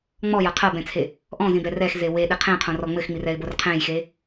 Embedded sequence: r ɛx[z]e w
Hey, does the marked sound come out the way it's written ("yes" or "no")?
yes